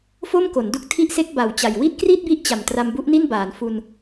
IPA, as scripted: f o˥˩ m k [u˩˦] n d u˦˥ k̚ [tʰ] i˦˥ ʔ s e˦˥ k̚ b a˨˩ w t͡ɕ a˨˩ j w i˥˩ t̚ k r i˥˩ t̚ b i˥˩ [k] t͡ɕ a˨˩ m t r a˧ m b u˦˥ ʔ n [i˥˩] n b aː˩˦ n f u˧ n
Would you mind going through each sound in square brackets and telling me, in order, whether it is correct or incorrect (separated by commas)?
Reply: incorrect, correct, incorrect, correct